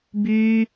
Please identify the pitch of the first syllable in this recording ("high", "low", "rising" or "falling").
high